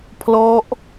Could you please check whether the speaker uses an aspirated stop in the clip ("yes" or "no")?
yes